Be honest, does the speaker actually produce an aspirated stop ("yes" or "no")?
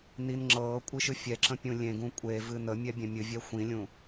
no